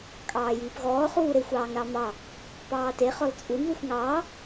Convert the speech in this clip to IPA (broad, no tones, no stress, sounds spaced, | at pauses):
kʼ ɑː j iː p ɣ ɔː χ uː ɾ e xʷ ɑː ŋ ɾ ɑ m ɑ | p ɑː t e χ ɔ l t͡sʼ u n ð u xʷ ŋ ɑː